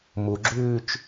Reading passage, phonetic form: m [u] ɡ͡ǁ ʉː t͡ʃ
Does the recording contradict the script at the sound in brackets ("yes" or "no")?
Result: no